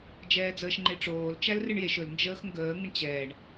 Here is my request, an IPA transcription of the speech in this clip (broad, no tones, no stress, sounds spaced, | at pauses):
d͡ʒ ɛː d͡z əː ʃ ŋ͡ǃ e ʈ͡ʂ oː l t͡ʃ æ l r ɨ ɳ j e ʃ ɵ l n d͡ʒ əː x ŋ ɡ əː ŋ ə ɳ t͡ɕ ɛː ɳ